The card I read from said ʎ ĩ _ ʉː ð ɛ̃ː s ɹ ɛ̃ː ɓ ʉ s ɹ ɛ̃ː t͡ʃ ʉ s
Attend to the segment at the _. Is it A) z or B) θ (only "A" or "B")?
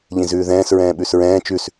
A